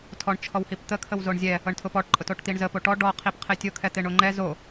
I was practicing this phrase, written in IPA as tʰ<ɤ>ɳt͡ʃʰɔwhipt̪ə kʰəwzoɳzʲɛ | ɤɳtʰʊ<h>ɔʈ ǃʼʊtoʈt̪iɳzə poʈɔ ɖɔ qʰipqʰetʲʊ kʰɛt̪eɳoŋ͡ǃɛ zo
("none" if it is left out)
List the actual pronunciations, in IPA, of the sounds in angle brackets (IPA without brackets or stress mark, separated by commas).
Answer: ɔ, p